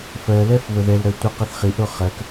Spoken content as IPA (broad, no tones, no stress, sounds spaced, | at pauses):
f ɜ l ɛ f β ə ð ɛ l ɾ ɜ tʷ i q ɛ θ χ i ʔ ɾ o χ ɜ k